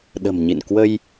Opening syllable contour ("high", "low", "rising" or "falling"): low